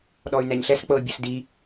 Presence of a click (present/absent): absent